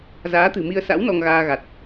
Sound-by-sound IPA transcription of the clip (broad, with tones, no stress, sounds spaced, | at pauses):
z aː˨˦ t̪ ɨ̤˨˩ m i˧ ə̯ s a̰˧˥ w n ɔ˧ ŋ ɣ aː˧ ɣ a˨˩ t̚